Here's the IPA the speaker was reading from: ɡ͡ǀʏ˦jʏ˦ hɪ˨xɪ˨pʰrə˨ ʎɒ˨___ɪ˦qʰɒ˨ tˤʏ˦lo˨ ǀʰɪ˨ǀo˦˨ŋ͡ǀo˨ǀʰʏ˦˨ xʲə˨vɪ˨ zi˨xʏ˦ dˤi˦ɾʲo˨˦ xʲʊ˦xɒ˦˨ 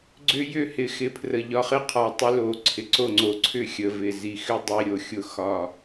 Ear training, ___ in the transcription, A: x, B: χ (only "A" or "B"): B